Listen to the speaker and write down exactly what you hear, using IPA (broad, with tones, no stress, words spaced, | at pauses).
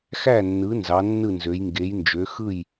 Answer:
xæ˥˩nːɯ˩˥ nzɑ˩˥nːɯ˥˩nzø˩˥j ŋɡe˩˥jnd͡ʒø˩˥ xɯ˥˩j